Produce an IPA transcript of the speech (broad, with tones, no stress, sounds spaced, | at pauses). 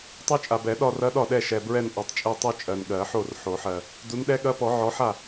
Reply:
tˤ u˦˥ t͡ʃʼ a˨ b ɛ˨˩˦ ɗ ɒ˥˧ r ɐ˦˥ ɗ ɒ˥˩ ɗ ɛ˥˩ ʃ ɛ˨ b ɹ ɛ˥˧ n ʔ ɔ˨˦ tˤ t͡ʃʼ e˥˧ tˤ u˥˧ t͡ʃʼ ɜ˨ n ɠ ɜ˨˩˦ ħ o˥˩ r ħ o˨˩˦ ħ ɜ˨ | d u˨˦ n ɗ ɛ˦˥ ɠ ɐ˦˥ p ɔ˨˩˦ ʕ ɔ˨˦ ħ a˥˩